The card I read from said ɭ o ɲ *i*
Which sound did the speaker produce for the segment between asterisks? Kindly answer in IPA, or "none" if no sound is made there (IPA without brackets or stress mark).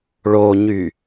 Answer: y